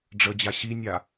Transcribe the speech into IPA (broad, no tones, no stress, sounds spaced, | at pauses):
ɖ͡ʐ ə d͡ʑ a ɕ i nʲ a